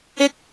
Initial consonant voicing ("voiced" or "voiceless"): voiceless